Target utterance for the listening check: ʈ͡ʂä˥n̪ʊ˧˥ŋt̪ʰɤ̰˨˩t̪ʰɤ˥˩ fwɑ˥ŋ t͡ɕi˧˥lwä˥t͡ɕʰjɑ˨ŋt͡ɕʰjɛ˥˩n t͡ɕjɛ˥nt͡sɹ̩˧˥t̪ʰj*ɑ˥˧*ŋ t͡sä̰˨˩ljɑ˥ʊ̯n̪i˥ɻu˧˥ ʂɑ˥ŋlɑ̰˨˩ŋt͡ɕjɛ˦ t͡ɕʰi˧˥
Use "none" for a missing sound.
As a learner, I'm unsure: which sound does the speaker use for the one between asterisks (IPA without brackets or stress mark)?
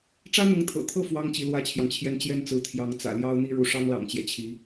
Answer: ɑ˧˥